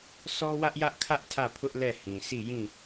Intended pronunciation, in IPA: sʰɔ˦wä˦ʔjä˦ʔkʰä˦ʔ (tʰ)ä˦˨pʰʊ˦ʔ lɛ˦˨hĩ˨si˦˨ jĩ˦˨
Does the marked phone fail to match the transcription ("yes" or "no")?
no